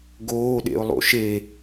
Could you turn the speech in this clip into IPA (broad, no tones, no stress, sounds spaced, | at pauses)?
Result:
ɡ oː ɗ ḛ ʊ̯ lˠ o̰ ʃ e